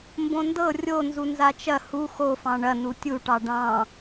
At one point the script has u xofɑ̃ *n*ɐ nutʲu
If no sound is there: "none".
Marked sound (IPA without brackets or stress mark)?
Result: ɳ